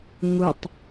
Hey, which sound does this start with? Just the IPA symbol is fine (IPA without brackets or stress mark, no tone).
ŋ